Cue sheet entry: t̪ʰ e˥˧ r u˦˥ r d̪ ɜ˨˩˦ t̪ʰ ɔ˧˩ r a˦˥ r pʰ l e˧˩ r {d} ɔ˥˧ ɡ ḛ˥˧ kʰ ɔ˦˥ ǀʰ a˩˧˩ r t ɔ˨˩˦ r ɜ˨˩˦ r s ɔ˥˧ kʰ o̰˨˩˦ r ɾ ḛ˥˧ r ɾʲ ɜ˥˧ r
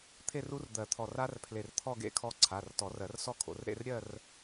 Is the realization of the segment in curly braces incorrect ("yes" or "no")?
yes